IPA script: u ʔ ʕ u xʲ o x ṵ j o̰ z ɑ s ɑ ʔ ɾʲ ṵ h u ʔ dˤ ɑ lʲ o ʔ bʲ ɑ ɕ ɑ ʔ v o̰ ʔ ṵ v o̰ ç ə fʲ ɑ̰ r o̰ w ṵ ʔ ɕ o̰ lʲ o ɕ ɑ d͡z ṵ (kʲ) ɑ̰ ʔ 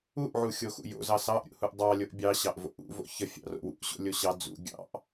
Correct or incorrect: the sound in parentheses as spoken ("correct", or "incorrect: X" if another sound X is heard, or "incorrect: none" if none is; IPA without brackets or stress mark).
incorrect: ɡʲ